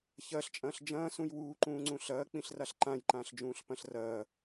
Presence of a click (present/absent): present